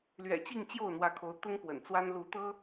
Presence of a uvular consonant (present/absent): absent